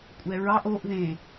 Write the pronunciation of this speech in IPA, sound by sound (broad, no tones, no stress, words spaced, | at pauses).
kʷʼɛɹɑʔ oʔ ðẽ